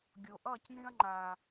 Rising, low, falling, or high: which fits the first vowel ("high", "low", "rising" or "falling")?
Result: low